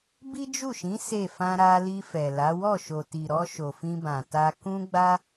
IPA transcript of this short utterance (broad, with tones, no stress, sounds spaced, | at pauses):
b i˦ d͡ʒ u˦˨ ʃ ĩ˨˦ s e˦˨ f ã˧ ɾ a˧ l i˧ f ɛ˨ l a˨˦ w ɔ˦˨ ʃ o˨ t i˨ ɾ ɔ˧ ʃ o˨ f ĩ˧ b ã˨ t a˧ k ũ˦ ɡ͡b a˦